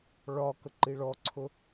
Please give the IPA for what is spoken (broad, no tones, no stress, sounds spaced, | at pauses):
ɭ ɒ k ə ǃ i ɭ ɔ ǀʰ ʊ